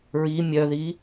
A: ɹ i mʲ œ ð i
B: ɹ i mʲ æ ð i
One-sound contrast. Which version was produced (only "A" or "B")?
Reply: A